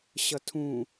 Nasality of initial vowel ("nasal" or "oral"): oral